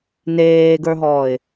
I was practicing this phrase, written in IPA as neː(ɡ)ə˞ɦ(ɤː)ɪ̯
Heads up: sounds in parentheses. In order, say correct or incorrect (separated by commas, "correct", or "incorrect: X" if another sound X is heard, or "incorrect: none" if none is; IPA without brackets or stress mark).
correct, incorrect: ɔː